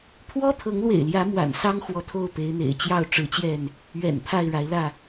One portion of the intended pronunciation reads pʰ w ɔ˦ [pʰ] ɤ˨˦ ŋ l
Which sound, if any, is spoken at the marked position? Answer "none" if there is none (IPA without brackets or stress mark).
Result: t̪ʰ